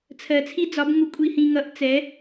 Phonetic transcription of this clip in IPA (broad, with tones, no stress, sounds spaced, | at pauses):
t͡sʰ ɜ˧ t͡sʰ i˥ d͡z ɒ˧˥ b ŋ u˧˥ kʷʼ i˧ h ĩ˧ ŋ ʌ˧˥ ʔ t͡s ɛ˧˥